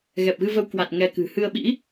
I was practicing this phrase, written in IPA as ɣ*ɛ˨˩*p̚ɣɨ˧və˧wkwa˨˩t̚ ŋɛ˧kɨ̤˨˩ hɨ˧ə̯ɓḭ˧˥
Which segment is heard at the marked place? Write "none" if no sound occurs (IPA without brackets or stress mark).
ɛ˨˩